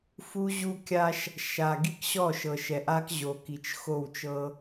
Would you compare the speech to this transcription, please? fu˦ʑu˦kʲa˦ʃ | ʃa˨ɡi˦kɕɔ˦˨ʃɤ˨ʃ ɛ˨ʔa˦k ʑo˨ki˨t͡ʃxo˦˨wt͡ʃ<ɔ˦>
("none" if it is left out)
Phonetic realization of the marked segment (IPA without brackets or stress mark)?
ɤ˦